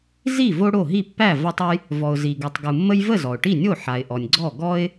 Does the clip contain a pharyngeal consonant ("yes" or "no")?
yes